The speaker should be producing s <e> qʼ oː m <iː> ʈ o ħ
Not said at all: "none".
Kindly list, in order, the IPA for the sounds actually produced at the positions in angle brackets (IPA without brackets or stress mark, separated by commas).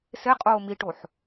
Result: e, i